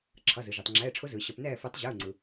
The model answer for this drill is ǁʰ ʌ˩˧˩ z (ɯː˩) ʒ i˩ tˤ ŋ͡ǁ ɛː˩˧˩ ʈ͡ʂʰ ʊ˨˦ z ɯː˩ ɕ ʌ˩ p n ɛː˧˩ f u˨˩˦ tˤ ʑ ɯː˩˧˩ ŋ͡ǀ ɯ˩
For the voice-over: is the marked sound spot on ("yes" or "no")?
no